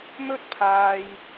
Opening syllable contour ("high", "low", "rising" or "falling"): high